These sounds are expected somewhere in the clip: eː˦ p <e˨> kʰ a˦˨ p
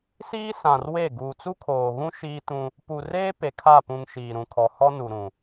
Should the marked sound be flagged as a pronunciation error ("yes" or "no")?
no